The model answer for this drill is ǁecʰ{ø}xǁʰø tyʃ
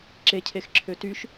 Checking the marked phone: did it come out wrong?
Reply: yes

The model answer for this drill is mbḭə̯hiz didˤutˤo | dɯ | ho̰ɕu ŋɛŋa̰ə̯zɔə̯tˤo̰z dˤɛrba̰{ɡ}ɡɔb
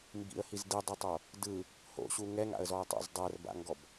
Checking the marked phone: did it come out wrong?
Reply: yes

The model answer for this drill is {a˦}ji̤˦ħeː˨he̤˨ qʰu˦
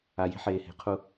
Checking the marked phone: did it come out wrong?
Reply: yes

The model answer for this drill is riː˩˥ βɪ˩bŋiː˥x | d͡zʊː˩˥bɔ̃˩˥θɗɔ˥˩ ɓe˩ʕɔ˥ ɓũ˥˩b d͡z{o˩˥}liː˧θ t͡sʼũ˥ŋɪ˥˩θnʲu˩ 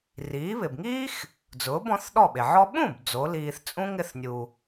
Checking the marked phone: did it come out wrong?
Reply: no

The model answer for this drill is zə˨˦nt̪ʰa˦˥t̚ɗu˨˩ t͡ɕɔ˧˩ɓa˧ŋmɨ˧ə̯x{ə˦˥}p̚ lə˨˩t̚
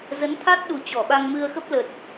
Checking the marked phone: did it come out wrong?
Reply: no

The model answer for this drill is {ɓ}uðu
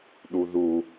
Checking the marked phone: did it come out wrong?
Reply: yes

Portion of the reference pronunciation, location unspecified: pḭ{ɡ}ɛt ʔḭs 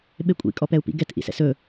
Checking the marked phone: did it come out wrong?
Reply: no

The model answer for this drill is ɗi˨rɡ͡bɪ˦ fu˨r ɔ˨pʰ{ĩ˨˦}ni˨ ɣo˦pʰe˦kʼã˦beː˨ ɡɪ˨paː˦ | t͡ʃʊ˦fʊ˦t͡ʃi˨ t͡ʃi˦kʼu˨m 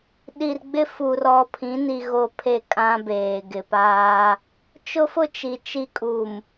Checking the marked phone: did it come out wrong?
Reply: no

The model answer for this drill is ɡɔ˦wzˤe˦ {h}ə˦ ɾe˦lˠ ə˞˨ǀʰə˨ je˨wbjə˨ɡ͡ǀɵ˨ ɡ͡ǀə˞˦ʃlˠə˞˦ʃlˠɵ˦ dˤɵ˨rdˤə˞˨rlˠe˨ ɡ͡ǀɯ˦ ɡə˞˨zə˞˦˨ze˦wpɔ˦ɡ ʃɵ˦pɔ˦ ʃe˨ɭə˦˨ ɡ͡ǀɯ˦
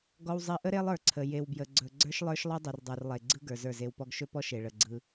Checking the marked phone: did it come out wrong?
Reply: yes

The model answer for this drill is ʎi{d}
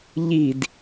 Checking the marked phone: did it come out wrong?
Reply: no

